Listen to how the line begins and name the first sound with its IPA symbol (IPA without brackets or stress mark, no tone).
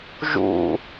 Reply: ʒ